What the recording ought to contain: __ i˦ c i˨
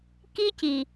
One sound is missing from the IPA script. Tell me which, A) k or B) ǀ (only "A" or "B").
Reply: A